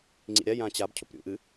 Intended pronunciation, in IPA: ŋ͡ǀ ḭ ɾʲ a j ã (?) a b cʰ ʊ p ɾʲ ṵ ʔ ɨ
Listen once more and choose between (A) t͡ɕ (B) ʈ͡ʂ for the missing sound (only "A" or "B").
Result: A